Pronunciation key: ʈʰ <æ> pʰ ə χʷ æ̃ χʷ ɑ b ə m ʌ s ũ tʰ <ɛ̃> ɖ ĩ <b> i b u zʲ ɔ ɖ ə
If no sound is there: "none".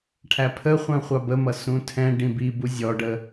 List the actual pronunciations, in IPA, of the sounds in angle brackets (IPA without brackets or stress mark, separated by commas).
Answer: æ, ɛ̃, b